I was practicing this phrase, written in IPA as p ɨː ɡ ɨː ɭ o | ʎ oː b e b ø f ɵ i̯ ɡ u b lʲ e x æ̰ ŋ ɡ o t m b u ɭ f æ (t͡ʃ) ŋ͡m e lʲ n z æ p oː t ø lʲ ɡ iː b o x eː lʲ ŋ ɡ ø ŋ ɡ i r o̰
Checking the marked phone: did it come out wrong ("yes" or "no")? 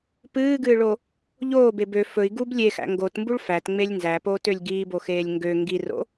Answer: yes